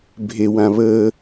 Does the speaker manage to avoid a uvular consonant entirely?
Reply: yes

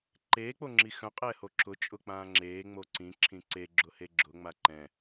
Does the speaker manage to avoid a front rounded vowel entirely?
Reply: no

